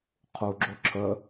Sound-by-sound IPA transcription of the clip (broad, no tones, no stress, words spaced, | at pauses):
qʰuɡ͡ǁo ǁʰə